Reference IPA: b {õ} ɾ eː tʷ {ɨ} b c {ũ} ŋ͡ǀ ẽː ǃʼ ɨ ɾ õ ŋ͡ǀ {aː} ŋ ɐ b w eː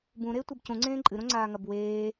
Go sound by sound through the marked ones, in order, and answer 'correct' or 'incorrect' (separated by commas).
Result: incorrect, correct, correct, correct